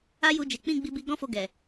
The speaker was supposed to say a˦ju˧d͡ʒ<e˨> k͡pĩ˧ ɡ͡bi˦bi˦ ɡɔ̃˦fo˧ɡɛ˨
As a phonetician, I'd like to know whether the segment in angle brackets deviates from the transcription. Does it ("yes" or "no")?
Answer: no